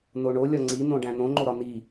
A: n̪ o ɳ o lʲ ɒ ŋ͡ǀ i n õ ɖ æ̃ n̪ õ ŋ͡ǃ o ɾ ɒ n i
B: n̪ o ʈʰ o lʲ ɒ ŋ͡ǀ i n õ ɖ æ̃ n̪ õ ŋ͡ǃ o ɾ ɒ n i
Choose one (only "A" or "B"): A